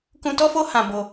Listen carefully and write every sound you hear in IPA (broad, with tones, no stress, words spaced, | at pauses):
kũ˧tɔ˦fo˦ hã˧bo˧